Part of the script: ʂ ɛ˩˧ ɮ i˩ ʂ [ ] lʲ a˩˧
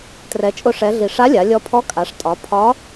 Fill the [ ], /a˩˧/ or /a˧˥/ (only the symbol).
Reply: a˧˥